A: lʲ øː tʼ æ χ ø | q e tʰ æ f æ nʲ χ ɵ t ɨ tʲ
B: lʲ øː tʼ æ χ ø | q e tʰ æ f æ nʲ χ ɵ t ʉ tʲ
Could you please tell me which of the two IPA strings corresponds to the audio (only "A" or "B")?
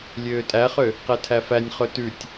B